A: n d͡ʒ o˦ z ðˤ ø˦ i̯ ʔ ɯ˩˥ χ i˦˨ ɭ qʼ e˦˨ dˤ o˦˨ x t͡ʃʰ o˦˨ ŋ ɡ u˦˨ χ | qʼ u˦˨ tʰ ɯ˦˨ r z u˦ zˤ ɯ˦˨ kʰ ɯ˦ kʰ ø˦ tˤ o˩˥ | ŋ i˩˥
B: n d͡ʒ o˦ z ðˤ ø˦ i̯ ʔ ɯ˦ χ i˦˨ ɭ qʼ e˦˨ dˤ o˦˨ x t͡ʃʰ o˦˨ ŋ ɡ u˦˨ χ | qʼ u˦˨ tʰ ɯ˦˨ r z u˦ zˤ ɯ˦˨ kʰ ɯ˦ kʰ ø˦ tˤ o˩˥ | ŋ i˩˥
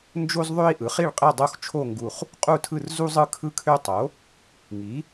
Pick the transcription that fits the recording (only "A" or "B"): A